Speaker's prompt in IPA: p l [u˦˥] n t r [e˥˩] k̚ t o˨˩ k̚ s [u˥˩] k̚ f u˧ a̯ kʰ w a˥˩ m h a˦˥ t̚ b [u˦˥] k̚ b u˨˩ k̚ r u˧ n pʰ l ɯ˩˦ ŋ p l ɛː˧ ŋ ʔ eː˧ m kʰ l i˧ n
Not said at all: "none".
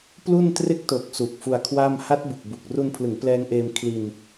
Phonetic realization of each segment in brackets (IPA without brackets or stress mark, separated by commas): u˥˩, e˥˩, u˨˩, u˨˩